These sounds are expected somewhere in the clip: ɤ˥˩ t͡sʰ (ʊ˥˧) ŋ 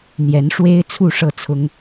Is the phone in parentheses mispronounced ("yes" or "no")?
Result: yes